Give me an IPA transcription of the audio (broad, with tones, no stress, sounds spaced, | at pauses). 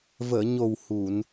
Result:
v əː˨˩˨ ɲ o˨˩ w h u˨˩˨ n